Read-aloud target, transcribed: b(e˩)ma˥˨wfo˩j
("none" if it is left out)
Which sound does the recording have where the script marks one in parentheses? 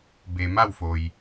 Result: e˩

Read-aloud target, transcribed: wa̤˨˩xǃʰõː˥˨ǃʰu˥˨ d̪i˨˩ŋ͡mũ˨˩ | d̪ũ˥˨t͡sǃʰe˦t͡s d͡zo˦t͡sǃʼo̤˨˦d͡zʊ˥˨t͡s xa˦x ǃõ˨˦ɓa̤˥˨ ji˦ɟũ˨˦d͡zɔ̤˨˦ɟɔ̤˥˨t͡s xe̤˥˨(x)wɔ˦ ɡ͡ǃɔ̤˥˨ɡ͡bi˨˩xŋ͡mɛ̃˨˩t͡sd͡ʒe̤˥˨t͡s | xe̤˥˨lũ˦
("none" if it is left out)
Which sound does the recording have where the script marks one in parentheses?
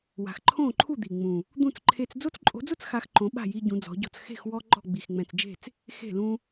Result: x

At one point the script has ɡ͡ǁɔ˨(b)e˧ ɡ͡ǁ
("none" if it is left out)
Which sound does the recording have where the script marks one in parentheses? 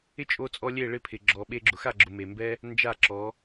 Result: ɓ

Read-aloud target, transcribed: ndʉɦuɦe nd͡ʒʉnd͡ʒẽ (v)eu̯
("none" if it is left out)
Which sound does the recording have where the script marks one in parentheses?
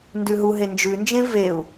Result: v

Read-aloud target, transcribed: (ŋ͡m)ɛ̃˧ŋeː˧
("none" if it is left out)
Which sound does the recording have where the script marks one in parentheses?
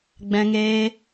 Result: ɡ͡b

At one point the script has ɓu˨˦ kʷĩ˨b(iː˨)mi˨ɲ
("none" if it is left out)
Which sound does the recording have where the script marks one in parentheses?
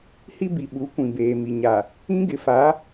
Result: eː˨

